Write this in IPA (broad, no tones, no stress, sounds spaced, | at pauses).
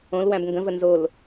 õ l w æ̃ b ŋ ɡ ə̃ v ə n z o l